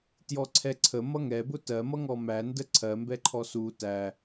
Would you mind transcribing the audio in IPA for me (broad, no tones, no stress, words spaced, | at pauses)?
tjɔǀʰɛǀʰə mʌŋɛbʊ tɜmʌŋɔ mændə ǀʰɜmbɛǃʰɔ su tæ